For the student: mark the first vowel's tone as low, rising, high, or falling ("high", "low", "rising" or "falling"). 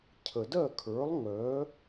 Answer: low